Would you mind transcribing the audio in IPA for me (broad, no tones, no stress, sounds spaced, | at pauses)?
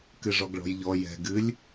k ɨ ʐ ɔ ɡ ɭ ɔ̤ j ʎ ɔ j ɛ̤ ɡ ɨ lʲ